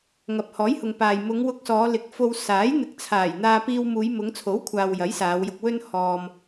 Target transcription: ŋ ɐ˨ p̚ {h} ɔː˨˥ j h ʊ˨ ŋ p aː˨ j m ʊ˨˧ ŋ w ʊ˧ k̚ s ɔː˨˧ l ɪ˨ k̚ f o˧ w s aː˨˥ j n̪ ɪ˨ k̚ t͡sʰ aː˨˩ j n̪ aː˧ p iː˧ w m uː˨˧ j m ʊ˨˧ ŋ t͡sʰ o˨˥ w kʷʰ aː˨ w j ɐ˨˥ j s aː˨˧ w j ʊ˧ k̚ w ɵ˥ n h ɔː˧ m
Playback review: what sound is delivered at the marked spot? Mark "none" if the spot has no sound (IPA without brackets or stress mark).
h